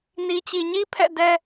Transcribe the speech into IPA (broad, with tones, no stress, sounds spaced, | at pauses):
n i˨ t͡ɕ i˨ ɲ i˦ pʰ ɛ̰˦˨ d ɛ˦